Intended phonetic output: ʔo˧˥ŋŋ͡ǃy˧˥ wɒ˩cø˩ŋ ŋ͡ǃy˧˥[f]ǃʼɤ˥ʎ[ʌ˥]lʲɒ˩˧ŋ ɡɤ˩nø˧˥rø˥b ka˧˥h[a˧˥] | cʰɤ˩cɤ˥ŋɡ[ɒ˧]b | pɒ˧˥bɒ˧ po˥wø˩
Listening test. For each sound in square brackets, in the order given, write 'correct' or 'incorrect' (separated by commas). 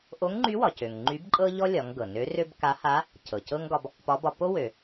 incorrect, incorrect, correct, correct